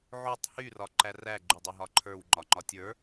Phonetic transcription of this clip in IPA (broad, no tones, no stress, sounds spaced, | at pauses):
ʕ o tˤ h y r ɒ ǃ æ r æ ɡ͡ǃ y dˤ e ɦ ɒ ǃʰ ə˞ w ŋ͡ǃ ɒ ŋ͡ǃ ɒ tʲ ə˞